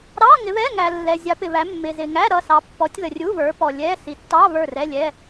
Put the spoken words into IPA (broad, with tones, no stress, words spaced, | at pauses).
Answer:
ɾɑ˧˥˧ ŋɪ˨˦βɛ˧˥˧ŋæ˨ lːɛ˨zʲɑ˨˦pɪ˨βæ˨˦ mːɪ˨zɪ˨ŋæ˧˥˧ ɾʌ˥˨sɑ˨˦ pːɔ˨˦tʲðə˨rʲu˧˥˧βə˞˨˦ pɔ˨lʲɛ˧˥˧ si˨tːɑ˧˥˧ βə˞˥˨rɛ˧˥˧lʲɛ˧˥˧